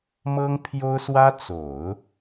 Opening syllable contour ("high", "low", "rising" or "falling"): high